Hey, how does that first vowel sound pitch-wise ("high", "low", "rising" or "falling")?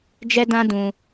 high